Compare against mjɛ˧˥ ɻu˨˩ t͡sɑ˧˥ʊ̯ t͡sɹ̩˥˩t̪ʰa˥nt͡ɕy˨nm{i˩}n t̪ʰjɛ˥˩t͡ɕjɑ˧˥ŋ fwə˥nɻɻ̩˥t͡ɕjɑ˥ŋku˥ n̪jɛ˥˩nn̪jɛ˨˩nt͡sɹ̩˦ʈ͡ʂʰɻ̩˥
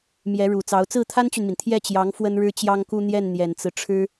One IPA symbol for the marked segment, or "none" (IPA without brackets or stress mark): i˩